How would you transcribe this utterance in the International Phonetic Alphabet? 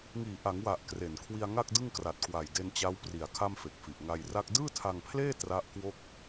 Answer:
ŋiː˨˩ʔa˩˦ŋwa˨˩ʔ kre˨˩n kʰwi˧a̯ŋa˥˩k̚dɯ˥˩ŋkra˨˩t̚ kwa˨˩jde˧nt͡ɕa˦˥w pri˨˩a̯ kʰa˥˩mfe˨˩k̚fi˨˩ʔ ŋa˧jra˥˩k̚ dɯː˥˩tʰa˧ŋpʰleː˥˩ tra˦˥ʔ kwo˥˩k̚

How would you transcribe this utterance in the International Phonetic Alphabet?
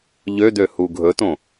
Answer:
ʎød̪øhu ɡʱɵtõ

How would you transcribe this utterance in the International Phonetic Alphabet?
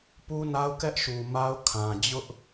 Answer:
pu˦na˦ʊ̯ kɛ˦ʔʃu˨ ma˦ʊ̯kʰã˨d͡ʑʊ˦ʔ

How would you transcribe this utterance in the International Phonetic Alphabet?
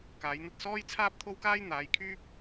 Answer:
kaː˨˧jn̪ɐ˧t̚sɔː˥jt͡sʰaː˥p̚ t̪ʰo˥wkaː˥jn̪aː˨˧jkʰyː˥p̚

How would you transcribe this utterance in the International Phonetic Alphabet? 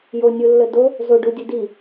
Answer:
jo nʲulːədo | zoɖudʲə di

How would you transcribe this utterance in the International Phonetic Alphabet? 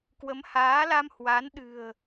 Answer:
kwə˨˦mhaː˨˦la˧m hwa˨˦n ɗɨ̤˨˩ə̯

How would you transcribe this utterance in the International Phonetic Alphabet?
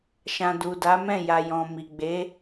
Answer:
ʃã˨ du˨da˨˦mɛ̃˦˨ ja˨jɔ̃˨ mi˨ɡ͡be˨˦

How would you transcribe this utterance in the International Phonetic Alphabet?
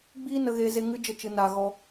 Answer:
ɡ͡biː˦nə˧ɣeː˧ ze˧ ŋɨ˧ d͡ʒə˦˨t͡ʃɨ˧naː˧ɣɔ˦

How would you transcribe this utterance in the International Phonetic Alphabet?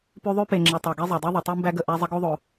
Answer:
pʉ˦ðˤʉ˥ pe˨ŋ͡ǁe˨tˤa˩ ɡe˦zˤo˩dˤe˦ ðˤə˩tˤi˥mbæ˥ɡə˨ ʔæ˦zˤə˥ɡo˥ðˤo˩

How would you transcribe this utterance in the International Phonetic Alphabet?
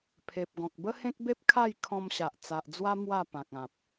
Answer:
pʰe˨p̚ɡɔ̃˨k̚ bə˦hẽ˦k̚be˦p̚ kʰa˥˧j kʰɔ̃˧mɕa˨ʔ t͡sa˨ʔd͡zwa˦ mwa˥˧pã˨k̚ã˨p̚

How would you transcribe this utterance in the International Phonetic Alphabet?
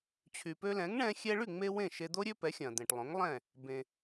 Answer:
t͡ɕʰy˩pø˧lɛ̃˩˥ŋɳɛ̃˧ xʲɛ˧ɭy˥˩ŋ͡me˧ wẽ˥˩ʃe˧d̪o˥ɾʲø˥ pɛ˩˥xʲɐ̃˩ d̪ẽ˩ʈlˠõ˩˥ŋlˠɛ̃˥˩ | bẽ˩

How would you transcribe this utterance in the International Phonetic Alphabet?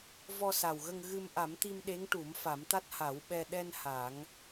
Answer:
vɔ˧sa˨˩wɣə˧ŋ ɣɨ˧m ʔa˨˩˦mt̪i˧m ɗe˧˥ŋʈu˨˩˦m fa˨˩˦mt̪a˦˥t̚ ha˨˩˦wɓɛ˧ ɗɛ˧n ha˨˩˦ŋ

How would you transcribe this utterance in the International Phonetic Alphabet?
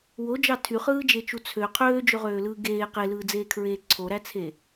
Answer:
wod͡ʒɑ tʰyχɯːd͡ʒet͡ʃu t͡sʰø qʰøːd͡ʒøʁøːlɯː ɡeː qelɯːd͡zeːkʰɹeː ǀʰoɾæt͡sʰe

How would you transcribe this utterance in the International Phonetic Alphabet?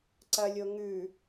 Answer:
ǀɐlʲo ŋʉ

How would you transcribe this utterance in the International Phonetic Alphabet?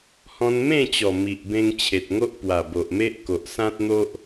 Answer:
hɔ̃˧nmẽ˥˧t͡ɕɔ˨˩ mi˨ʔbẽ˧ŋ t͡ɕʰe˨t̚ŋo˦ʔ pwa˨˩bo˨ʔme˦ʔ ko˨ʔsã˦t̚n̪o˦ʔ

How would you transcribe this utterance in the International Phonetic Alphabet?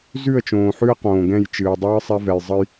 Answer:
zʉ˦˨ə̯t͡ʃõː˨ħʉ˦ə̯ qõː˨ɡɛ̃˦˨j t͡ʃɨː˨dˤɨː˦sˤɛ˦vɛ˨j zˤə˦j

